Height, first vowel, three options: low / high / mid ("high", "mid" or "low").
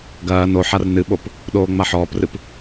low